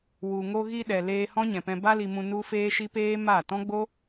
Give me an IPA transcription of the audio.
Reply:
w u˨ ŋ o˧ ɣ i˧ ɗ ɛ˨ l eː˧ h ɔ̃˦ ɲ ɛ̃˨ p ɛ̃˧ b a˦ l i˧ m ũ˧ n u˦ f eː˦ ʃ i˦ p eː˦ m a˦˨ t ɔ̃˦ ɡ͡b o˦

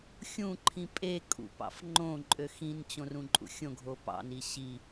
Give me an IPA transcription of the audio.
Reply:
xʲ ũ ǃʰ ĩ pʼ e kʼ ṵ p ɑ̰ f ŋ͡ǃ õ ǃʼ ø x ĩ n t͡ɕ õ r ũ ǃʼ ṵ xʲ õ ɡʱ o p ɑ̰ n i ɕ i

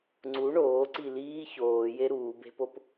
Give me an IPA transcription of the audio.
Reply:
ŋ͡ǀ u ɳ oː ǀ i l iː ç oː j e ɾ uː b e̤ p o p

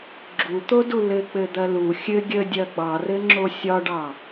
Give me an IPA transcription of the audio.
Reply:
ɡ͡ǁ u t̪ o d u l ɘ k͡p ɘ d̪ ɐ l u xʲ ɘ ɡʲ ə dʲ ɐ ɡ͡b ɑ r ɘ ŋ͡ǁ o sʲ ɒ ɖ ɑ

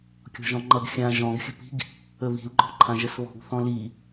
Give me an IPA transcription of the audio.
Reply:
kʲ ɔ̤ ʒ ɔ̃ ŋ͡ǃ ʌ ɡ xʲ ã ʒ ɔ̃ ɡ xʲ ə̤ p i̤ ɡ | ə β i̤ l ɡ͡ǃ ɔ̤ ǃʰ ã ʒ ə s β ɔ̤ ɡ θ ɔ̃ l i

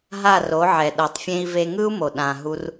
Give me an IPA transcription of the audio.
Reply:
ɦ a˦˨ r o˨˦ ʕ ɛ˨ ɗ ɤ˨ tˤ fʲ ẽ˧ i̯ v e˧ ŋ ɯ˦ u̯ m o˨ ɗ ã˨ ɦ u˦ r

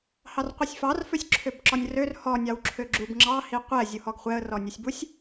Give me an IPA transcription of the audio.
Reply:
h ɑ r qʷ i sʲ f ɑ r f ø sʲ ǁʰ ø b ǁ ɔ nʲ r ø r h ɔ nʲ ɑ w ǁʰ ø ɡ͡ǁ u b ŋ͡ǁ ɑ h i qʷ ɛ zʲ u h ɔ ɡ χʷ ɛ ə̯ r ɔ nʲ ø sʲ b u sʲ

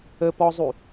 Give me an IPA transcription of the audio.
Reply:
ə p ɔ zˤ u

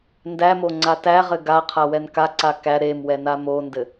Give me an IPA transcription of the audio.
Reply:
n d æ m o ŋ͡ǀ a t æ ʁ ɘ ɡ a qʰ a w ɛ n k a ǀ a k æ ɾ e m w ɛ n a m o n d ɘ

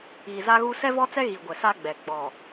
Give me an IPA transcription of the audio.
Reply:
iː˨ z a˦ ɣ u˦ s ɛ˦ v ɔ˦ t͡s ɛ˦ ɣ i˨ ɡʷ ɛ˨ s a˦ ɡ͡b ɛ˨ ɡ͡b ɔ˨

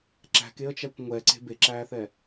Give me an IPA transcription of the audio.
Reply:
ǁ æ̤ k e ə̯ t͡ʃ æ kʷ ŋʷ ɛ ǀ e̤ b e ǁ æː θ ɛ

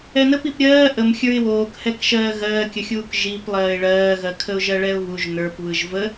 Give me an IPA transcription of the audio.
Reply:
ɛ n ə p i p ɾʲ ɜː ʔ ə m xʲ ə˞ ɪ̯ w oː k h ɛ k ʃ ɜː ɣ ɜː kʲ ə xʲ uː k ʒ i p lˠ ɜː ɪ̯ ɭ ɜː ɣ ɜ kʰ ə ʊ̯ ʒ ɜ ɭ ɛ ʊ̯ β u ʒ n ə˞ p β ɯ ʒ v ə

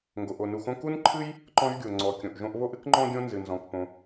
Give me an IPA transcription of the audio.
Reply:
ŋ ɡ o˩ ʔ o˩ n u˩ x õ˥ k u˥ n ǃʰ ɨ˥ j | ǃ ɔ̃˥ ʒ ɡʲ o˩ ŋ͡ǀ ɔ˩ kʲ õ˩ ʔ ʒ õ˥ ʔ β o˥ ʔ ɨ˥ k ŋ͡ǃ ɔ̃˥ ɡʲ õ˥ n z ɨ˩ n z ɔ̃˩ k p õ˩

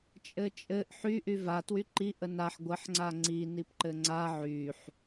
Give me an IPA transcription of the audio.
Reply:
t͡ʃʼ ɘ t͡ʃʼ ɘ ʔ ħ y ʔ y v a t w y ǃ i ʔ ə n a ħ ɡʷ ə ħ ŋ͡ǀ a ŋ͡ǀ i n i p ǃ ɘ ŋ͡ǀ a ʕ y ħ

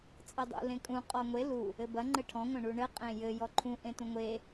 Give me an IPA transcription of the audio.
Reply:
t͡sʼ ɘ dˤ ṵ l ẽ kʼ ũ qʼ ɔ ŋʷ e l u | ɘ b ɐ ŋ͡ǃ ɘ ʈʰ ɔ̃ ŋʷ ɐ̃ ɳ u ɳ ɘ qʼ ẽ j ɘ j ɔ ǃʰ ũ ʔ ẽ t ũ ŋʷ e

